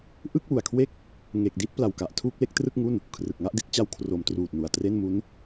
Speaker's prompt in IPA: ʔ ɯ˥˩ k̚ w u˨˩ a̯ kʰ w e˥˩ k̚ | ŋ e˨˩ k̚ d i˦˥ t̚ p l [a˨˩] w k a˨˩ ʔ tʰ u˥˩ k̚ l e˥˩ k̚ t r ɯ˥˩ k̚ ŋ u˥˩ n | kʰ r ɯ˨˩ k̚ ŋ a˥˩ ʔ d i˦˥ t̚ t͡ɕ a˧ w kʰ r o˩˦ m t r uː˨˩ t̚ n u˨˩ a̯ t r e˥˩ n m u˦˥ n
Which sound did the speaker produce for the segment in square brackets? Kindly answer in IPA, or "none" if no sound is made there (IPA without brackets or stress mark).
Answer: a˨˩